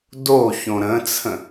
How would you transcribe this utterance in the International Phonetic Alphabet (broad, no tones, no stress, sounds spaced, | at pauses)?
d o ç õ ɾ ə̃ t͡sʰ ə̃